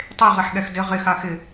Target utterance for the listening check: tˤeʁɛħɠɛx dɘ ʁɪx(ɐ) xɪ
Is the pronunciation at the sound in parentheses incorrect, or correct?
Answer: incorrect